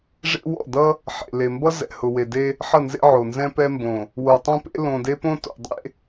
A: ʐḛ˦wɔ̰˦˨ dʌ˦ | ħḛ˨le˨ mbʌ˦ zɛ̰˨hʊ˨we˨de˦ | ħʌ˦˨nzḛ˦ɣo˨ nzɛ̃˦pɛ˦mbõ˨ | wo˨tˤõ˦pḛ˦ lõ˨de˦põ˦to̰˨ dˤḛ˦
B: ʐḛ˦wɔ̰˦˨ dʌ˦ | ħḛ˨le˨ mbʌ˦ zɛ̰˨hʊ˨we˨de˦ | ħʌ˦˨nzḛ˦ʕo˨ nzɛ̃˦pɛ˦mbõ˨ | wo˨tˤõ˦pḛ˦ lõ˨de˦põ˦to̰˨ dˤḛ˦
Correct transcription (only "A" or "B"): B